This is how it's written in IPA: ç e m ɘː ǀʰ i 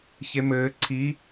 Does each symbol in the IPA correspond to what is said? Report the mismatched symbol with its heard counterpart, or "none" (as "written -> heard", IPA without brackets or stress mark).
none